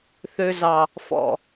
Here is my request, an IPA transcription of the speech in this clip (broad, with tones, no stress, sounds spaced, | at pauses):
θ ø˨ z ɑ˨ | f ɔ̰˨